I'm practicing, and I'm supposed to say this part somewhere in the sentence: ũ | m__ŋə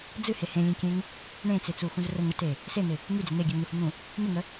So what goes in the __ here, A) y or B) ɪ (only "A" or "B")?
B